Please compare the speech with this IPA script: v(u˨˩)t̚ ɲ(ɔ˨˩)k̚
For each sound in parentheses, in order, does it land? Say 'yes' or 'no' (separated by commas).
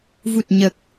yes, no